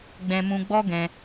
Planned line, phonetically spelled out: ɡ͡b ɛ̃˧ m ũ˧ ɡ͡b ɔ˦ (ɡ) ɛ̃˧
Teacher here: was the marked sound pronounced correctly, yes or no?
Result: yes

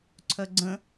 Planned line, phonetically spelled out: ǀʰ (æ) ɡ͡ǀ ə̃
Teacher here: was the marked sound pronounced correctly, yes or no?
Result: no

